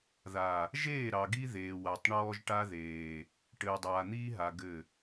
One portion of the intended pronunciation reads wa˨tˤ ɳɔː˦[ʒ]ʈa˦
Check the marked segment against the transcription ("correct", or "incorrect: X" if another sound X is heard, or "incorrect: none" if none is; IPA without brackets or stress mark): correct